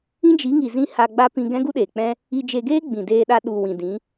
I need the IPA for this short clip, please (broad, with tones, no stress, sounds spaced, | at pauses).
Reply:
ĩ˦ d͡ʒ i˨˦ ŋ i˨ z ĩ˧ h a˧ ɡ͡b a˦ p ĩ˧ ɡ ɛ̃˦ ɡ u˦ ɗ eː˨ k͡p ɛ̃˦ | i˧ d͡ʒ e˧ ɡ eː˦ ɡ͡b ĩ˨ d eː˧ ɗ a˧ ɗ u˨ w ĩ˨ d ĩ˨˦